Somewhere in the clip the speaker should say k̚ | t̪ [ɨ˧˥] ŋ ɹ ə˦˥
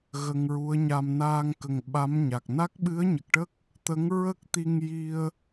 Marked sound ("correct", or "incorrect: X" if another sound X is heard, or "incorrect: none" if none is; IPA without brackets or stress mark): incorrect: ə˧˥